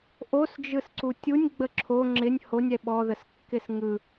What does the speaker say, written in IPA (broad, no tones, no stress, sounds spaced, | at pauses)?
ʔ o s d͡ʒ ɯ s ǀ u tʲ u nʲ ɡ͡b ə ǁʰ o ŋ͡ǁ ɪ nʲ h o nʲ ɛ ɓ ɔ ð ə s kː ɪ s ŋ ɯ